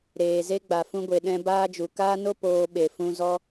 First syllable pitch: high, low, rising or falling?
low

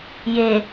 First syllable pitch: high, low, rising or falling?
low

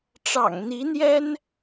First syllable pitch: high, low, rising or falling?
low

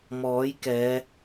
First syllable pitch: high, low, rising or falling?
rising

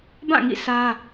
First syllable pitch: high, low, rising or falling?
falling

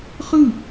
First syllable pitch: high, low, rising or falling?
falling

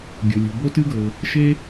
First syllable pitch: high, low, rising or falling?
low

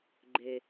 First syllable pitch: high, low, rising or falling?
low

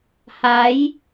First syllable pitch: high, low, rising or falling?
rising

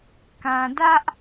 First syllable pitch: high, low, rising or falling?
low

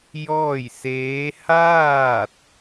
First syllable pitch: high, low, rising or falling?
falling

